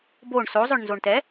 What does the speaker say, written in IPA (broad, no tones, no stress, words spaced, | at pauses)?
boɳ sozˤʏɳ nzoɳtɛ